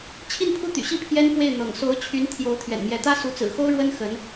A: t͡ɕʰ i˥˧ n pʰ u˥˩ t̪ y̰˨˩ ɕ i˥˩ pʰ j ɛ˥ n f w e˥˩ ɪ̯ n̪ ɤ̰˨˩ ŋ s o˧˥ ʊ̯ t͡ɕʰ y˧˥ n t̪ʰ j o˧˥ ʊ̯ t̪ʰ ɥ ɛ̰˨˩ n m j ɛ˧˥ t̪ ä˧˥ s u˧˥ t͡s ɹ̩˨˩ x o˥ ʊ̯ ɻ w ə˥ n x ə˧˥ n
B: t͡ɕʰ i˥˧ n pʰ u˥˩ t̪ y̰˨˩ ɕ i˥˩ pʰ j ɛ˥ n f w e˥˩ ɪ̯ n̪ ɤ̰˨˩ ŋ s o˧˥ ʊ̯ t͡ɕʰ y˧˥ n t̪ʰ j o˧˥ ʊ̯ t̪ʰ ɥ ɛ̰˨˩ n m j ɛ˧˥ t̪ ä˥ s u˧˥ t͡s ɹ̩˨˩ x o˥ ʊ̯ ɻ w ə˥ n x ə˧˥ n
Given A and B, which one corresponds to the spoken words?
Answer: B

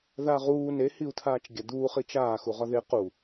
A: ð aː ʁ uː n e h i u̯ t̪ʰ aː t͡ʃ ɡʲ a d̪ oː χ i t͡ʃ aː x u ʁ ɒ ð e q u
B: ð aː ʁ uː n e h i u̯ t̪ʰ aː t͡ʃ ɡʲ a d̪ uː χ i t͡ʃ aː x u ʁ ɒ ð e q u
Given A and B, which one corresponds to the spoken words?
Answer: B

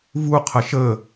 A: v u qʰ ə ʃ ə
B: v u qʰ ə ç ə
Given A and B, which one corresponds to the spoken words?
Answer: A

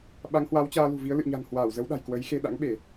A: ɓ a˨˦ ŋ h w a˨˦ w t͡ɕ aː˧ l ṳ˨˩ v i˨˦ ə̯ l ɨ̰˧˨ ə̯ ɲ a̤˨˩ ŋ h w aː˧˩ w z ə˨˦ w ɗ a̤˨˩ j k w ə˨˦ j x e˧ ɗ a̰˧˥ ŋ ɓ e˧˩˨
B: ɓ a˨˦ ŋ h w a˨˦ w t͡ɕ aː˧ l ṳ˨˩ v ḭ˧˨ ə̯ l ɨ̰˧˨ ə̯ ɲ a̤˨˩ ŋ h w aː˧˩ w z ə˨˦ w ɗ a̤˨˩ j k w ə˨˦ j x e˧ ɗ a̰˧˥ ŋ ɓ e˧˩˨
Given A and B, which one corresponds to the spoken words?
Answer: A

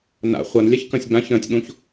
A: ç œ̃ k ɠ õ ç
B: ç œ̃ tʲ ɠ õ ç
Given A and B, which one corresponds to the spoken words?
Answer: B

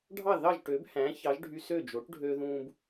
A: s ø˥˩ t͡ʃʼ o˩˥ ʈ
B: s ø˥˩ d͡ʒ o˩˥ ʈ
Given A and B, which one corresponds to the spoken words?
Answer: B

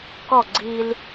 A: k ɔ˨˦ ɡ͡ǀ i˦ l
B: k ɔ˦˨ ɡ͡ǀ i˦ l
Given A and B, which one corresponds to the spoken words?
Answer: B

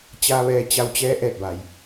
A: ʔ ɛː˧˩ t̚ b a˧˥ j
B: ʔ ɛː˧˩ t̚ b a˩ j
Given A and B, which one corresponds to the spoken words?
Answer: B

